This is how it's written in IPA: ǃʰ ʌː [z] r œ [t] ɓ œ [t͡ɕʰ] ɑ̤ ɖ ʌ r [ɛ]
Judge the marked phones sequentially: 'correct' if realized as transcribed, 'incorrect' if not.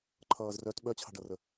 correct, correct, correct, incorrect: ə

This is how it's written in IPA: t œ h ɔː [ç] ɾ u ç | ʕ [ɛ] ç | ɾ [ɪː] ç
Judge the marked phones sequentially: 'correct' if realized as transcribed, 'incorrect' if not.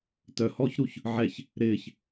correct, correct, correct

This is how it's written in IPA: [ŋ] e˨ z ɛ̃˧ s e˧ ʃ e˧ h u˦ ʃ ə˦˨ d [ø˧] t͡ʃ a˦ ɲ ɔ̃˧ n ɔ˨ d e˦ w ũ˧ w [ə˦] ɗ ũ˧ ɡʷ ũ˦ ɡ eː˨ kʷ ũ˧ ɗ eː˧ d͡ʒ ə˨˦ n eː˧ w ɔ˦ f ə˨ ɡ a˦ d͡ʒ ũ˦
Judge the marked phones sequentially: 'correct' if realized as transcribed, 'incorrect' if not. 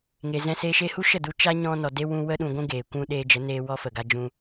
correct, incorrect: u˧, correct

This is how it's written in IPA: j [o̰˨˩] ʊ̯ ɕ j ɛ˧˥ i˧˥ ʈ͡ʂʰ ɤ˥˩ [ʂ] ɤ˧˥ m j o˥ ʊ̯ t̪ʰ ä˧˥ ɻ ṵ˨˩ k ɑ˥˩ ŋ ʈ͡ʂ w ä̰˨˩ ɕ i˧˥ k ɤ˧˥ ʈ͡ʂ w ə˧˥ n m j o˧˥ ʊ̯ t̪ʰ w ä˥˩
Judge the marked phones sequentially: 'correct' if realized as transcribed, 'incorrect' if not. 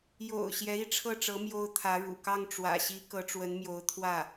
correct, incorrect: ʈ͡ʂ

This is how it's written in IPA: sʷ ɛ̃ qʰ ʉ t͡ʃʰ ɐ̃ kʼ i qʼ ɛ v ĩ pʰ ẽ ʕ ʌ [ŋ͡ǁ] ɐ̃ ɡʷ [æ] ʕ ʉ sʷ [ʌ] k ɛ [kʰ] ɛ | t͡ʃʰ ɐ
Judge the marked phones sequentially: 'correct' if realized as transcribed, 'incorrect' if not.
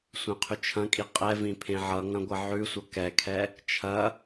incorrect: ŋ, incorrect: ɐ, correct, correct

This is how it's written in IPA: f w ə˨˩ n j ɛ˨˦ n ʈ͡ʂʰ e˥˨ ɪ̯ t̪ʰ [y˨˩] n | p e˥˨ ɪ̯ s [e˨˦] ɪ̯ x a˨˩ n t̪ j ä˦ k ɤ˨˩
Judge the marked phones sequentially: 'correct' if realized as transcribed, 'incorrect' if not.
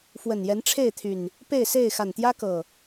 correct, incorrect: e˥˨

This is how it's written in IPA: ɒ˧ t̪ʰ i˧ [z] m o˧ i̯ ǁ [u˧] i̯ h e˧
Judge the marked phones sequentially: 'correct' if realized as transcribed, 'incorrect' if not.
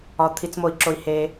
incorrect: t͡s, incorrect: o˧

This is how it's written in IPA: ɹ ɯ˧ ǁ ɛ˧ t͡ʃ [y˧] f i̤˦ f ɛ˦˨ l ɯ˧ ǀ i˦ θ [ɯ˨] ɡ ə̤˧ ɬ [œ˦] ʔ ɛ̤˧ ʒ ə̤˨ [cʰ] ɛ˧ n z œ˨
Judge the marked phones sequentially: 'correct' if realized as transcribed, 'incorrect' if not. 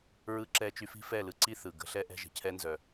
correct, correct, incorrect: ɛ˦, correct

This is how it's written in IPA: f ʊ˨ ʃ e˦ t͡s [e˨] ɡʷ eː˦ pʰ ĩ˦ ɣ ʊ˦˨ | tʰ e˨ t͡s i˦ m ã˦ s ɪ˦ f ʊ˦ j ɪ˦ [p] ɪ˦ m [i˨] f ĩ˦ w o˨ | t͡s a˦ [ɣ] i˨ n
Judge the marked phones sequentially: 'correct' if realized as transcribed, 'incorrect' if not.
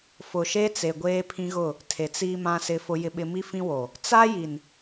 correct, incorrect: ɓ, incorrect: i˦, incorrect: j

